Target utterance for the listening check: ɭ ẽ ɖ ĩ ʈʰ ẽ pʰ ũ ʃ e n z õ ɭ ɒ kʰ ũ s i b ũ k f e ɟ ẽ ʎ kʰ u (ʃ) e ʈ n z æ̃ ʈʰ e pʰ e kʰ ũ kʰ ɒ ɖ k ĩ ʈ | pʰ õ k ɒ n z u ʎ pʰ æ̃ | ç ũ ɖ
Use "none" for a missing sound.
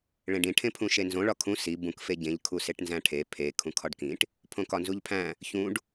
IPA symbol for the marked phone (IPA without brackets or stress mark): s